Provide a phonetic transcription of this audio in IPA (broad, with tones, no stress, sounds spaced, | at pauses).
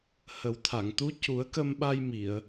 h ə˨˩˦ w t̪ʰ a˨˩˨ ŋ t̪ u˧˥ c u˨˩˦ ə̯ k ə˧ m ɓ a˧ j m i˨˩˨ ə̯